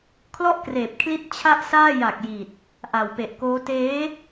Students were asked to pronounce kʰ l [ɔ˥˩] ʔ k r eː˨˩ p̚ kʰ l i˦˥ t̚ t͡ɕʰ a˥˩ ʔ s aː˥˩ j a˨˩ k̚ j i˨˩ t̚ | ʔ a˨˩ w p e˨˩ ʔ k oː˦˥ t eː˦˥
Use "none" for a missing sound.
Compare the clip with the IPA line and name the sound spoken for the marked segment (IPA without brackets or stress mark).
ɔ˥˩